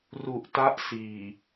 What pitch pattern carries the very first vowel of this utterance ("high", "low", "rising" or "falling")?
low